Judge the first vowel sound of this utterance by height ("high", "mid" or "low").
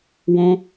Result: mid